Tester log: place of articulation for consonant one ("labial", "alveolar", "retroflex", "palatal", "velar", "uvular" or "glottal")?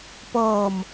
labial